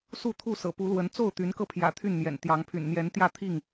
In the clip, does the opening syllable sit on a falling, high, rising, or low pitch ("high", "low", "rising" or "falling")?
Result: falling